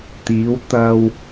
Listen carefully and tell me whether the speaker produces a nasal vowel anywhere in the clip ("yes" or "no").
no